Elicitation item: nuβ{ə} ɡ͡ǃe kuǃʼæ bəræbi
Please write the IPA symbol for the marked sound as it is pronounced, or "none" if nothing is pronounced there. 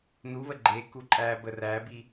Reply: ə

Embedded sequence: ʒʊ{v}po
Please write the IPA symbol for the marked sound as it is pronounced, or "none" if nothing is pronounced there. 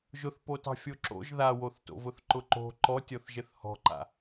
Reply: θ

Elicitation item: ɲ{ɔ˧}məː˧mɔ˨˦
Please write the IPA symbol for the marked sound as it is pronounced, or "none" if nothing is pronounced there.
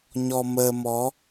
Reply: ɔ˧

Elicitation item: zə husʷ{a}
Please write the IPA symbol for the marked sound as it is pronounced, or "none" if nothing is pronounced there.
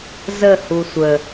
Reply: ə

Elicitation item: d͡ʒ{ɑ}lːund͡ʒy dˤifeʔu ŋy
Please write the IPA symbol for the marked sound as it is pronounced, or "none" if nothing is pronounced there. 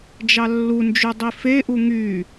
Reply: ɑ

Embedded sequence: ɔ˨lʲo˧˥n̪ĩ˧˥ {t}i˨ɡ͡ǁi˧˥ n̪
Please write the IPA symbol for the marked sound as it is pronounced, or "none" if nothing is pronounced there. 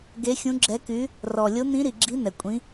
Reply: ɾ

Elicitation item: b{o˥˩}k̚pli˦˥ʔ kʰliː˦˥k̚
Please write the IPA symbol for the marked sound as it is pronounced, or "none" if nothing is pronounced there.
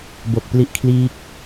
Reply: o˨˩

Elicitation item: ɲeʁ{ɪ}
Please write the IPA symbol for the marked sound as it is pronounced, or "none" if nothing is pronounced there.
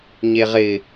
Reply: ɪ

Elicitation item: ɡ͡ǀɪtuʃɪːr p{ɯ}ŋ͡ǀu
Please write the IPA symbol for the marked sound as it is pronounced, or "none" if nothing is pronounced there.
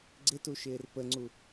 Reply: ə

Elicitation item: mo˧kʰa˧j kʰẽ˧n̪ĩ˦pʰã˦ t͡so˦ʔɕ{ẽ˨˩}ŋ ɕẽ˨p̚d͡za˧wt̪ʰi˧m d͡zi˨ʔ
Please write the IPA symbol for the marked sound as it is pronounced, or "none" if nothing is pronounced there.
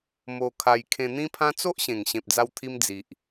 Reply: ẽ˨˩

